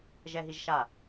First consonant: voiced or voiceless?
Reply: voiced